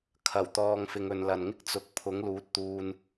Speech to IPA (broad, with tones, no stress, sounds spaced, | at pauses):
kʰ ɐ˨˩ w t̪ ɔː˨ ŋ f ɪ˨ ŋ ɵ˨ n l ɐ˨ n ŋ ɪ˥ k̚ t͡s ʊ˨˥ k̚ pʰ ʊ˨˥ ŋ l uː˨˥ t̚ t̪ uː˧ n